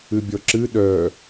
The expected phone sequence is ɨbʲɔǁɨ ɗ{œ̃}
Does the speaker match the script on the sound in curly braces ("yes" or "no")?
no